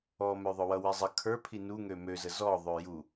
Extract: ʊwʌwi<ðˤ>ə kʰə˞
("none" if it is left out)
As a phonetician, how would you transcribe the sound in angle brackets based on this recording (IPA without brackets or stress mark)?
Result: zˤ